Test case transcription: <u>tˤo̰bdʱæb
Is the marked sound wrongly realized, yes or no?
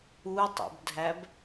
no